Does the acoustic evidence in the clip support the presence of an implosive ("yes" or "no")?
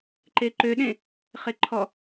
yes